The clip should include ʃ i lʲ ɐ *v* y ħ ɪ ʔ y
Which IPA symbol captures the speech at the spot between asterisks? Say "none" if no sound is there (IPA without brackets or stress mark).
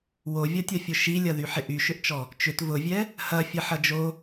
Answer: ð